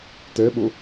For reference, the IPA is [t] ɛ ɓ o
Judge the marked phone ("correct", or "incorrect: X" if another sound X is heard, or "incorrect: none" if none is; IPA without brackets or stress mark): correct